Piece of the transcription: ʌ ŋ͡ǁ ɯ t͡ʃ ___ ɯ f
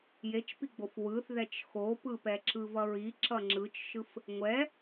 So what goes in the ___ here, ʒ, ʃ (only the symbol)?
ʃ